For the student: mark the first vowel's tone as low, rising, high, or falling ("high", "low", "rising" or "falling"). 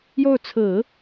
falling